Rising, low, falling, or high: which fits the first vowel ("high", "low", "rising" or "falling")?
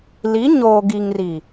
rising